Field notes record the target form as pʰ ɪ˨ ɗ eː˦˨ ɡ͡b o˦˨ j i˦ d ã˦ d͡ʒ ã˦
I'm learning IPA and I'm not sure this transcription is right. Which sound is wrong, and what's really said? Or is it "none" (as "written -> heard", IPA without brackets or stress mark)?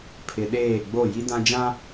none